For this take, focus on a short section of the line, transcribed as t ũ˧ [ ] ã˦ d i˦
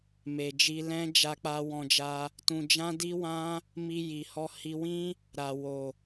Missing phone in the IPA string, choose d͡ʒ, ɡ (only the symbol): d͡ʒ